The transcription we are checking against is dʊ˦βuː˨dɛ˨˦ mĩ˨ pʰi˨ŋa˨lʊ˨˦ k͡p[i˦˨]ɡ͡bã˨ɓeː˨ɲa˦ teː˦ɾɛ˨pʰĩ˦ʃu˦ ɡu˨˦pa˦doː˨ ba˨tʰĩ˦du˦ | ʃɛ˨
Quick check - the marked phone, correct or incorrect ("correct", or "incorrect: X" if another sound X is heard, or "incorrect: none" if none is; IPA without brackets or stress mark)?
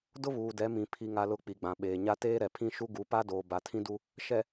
incorrect: i˨